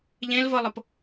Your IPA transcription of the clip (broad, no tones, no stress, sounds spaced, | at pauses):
ʎ ẽ l v ɤ lˠ ɤ p